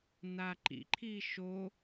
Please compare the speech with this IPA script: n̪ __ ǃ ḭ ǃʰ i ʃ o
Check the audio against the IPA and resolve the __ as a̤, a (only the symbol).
a